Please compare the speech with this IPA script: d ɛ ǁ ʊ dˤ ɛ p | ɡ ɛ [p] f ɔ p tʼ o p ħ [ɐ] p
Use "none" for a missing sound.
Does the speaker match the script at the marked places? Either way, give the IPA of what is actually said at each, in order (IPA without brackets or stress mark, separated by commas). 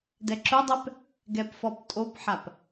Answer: p, a